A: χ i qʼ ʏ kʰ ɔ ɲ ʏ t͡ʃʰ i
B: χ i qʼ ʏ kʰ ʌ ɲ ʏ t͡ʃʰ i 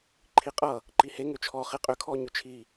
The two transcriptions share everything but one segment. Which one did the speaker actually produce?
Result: A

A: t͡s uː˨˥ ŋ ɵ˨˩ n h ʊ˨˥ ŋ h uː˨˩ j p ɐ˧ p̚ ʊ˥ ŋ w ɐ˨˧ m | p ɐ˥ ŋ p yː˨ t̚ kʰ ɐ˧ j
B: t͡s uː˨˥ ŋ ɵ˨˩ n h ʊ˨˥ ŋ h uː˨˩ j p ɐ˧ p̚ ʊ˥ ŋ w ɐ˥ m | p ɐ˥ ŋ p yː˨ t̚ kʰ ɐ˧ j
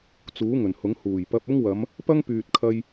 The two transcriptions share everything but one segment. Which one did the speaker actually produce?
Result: A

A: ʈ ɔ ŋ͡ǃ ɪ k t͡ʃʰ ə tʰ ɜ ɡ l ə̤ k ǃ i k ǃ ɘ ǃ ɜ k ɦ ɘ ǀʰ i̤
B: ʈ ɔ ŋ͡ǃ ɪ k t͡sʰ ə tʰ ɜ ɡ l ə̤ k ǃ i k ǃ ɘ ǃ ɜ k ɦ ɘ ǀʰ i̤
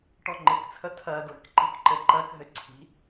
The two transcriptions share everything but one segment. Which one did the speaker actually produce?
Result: B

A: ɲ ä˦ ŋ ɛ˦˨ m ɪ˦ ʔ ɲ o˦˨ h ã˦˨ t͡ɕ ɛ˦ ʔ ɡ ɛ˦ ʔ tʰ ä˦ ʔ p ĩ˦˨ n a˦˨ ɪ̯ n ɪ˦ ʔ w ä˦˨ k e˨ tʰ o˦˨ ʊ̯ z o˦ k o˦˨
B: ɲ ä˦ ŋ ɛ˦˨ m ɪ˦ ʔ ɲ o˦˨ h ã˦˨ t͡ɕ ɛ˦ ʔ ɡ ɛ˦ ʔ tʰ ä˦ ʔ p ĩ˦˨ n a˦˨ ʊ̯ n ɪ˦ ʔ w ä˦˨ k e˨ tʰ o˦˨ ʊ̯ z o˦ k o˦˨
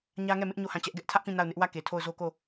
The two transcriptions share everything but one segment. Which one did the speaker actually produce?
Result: B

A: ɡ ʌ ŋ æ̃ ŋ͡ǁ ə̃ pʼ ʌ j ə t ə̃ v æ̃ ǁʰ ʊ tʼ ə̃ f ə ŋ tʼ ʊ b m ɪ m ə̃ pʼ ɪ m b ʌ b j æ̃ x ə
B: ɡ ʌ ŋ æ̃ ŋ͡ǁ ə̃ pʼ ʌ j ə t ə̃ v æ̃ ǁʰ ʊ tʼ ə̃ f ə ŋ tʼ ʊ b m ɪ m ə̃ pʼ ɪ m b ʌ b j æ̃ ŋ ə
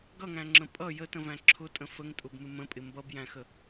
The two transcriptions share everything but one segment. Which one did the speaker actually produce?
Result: A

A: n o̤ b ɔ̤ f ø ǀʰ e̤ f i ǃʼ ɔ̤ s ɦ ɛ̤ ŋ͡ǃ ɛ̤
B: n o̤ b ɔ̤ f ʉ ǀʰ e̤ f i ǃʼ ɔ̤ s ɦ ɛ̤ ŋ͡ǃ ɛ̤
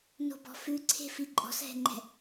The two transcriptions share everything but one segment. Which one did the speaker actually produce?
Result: B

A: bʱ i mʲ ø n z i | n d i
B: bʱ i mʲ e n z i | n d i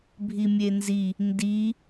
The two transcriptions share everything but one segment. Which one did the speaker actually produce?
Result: B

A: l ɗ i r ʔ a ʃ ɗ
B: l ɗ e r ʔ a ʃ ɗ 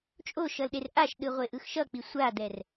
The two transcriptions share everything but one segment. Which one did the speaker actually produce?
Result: B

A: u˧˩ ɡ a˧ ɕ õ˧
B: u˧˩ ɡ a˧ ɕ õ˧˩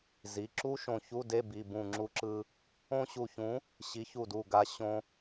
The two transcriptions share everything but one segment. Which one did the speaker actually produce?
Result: A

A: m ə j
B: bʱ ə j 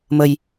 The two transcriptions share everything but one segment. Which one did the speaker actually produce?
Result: A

